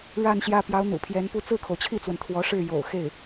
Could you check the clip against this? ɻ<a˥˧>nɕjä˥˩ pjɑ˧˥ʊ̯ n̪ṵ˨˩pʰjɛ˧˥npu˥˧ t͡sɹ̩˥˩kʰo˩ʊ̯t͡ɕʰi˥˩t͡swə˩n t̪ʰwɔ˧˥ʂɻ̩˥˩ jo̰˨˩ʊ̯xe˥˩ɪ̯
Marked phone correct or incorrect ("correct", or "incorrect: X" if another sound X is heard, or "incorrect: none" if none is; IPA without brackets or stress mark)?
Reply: correct